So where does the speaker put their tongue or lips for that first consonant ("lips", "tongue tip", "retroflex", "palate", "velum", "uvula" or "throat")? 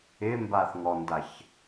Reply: lips